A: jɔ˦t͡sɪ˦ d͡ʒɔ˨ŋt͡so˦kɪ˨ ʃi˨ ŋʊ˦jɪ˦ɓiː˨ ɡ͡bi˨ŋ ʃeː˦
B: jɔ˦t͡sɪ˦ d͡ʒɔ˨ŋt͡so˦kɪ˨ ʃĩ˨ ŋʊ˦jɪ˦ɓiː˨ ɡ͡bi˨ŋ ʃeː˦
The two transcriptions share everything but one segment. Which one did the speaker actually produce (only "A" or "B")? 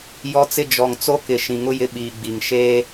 B